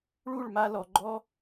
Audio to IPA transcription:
ɭ u˦˨ ɭ m a˧ l ɔ˨ ɡ͡ǃ ɔ˦

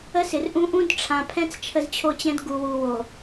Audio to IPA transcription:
ə˦ s ɪ˨ r ʔ ũ˦ ʔ ũ˦ d ʈ͡ʂʰ ã˨ pʰ ɛ̃˦ t͡s t͡ʃʰ ə˦ z t͡ɕʰ o˦ t͡ɕ ɛ̃˦ d ɡ u˨ w u˨ w o˨

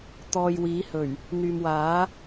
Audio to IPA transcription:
t̪ ɔː˨ j w iː˨˥ h ɵ˨˩ ɥ | n̪ yː˨ m w aː˨˥

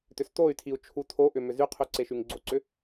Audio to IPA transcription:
t ʏ s t o y̯ tʰ i u̯ t͡ʃʰ u tʰ o ʔ ʏ m ʏ z y qʰ y ǀ e ʃ y ŋ ɡ͡ǀ o ǀ ʏ

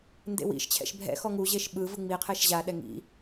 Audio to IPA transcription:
n d ḛ w ḭ ʃ t͡ɕʰ ɛ̰ ʃ bʱ ɛ̰ x ɔ ŋ u ʑ e ʃ ɓ ɯ v ɯ ŋ͡m i qʰ e ʃ ʑ a ɗ ɛ ŋ ḭ

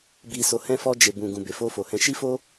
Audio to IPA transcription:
b i˧ s o˧ h ɛ̃˦ f ɔ˧ d͡ʒ e˨ b ũ˨ ɡ ũ˨ b e˨ f o˧ f o˨ h ɛ̃˧ ʃ i˦ f o˦

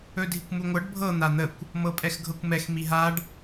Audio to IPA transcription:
ɵ dʱ i kʷ m u ŋʷ ɤ ɖ bʱ ɤ n̪ a n̪ ə kʷ | m ɤ pʼ ɛ x ɡʱ ɤ kʷ m ɛ x m i ɦ a ɖ

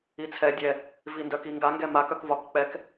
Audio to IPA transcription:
i t͡sʰ ɛ dʲ ɛ | v i n d œ k i ŋ ɡ a ŋ ɡ ɛ m a k œ k v ɒ k k͡p ɛ k

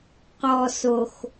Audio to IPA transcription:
q ɔ s o x

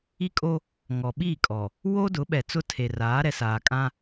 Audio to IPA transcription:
i˦ kʼ o˦ | ŋ ɔ˨ ɓ iː˦˨ kʼ ɔ˨ | w o˦ d ʊ˨˦ ɓ ɛ˨ t͡s ʊ˦ tʰ e˨ r aː˨˦ ɾ ɛ˨ s aː˨ kʼ ã˦

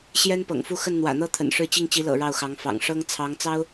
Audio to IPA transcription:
ɕ j ɛ˥ n p ɤ̰˨˩ ŋ f u˥˧ x ə˥˩ n n̪ w ä̰˨˩ n̪ ɤ˥ t̪ʰ ə̰˨˩ n ʂ ɻ̩˥˧ t͡ɕ i˥˩ ŋ t͡ɕ i˧˥ l ɤ̰˨˩ ɻ ɑ˥˩ ʊ̯ x ɑ˧˥ ŋ f ɑ̰˨˩ ŋ ʂ ɤ˥ ŋ t͡sʰ ɑ˧˥ ŋ t͡s ɑ˥ ʊ̯

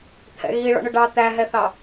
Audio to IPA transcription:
t̪ʰ ɛ̰ ɣ i ɭ ɔ̰ ɳ ʊ ɖ ɑ t̪ æ ɦ ɛ θ ɑ

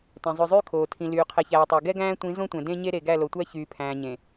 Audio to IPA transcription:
t ɛ̃˨ zˤ ʉ˨ zˤ yː˦ kʰ oː˨ tʰ ĩ˨ l yː˨ qʰ ɛ˨ ç æː˨ tˤ e˨ ɡ ɛ˦ ɡ æ̃ː˦ tʷ ĩ˨˦ z õ˦ tʷ ɛ̃˨ d ẽ˦ ɲ e˦ ɾ e˨ ɡ æ˦˨ l o˨ tʷ æ˦ ç yː˨ pʰ æ̃ː˨ ɲ ẽ˨

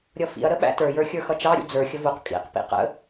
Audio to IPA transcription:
ɾʲ ʌ f ḭ ɐ̯ ɾ ə ɓ æ̰ t ə˞ j ə˞ xʲ ə˞ x ʌ t͡ʃ ɑ ɾʲ ṵ d͡z ə˞ xʲ ə v u q kʼ ḭ q p ḭ q ə̰

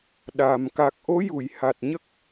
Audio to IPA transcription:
ɗ a˨˩ m k a˨˩ k̚ ʔ o˧˥ j u˨˩˨ j h a˨˩ t̚ ɲ ə˦˥ k̚

